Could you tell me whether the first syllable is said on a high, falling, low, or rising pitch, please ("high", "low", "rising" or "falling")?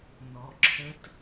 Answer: low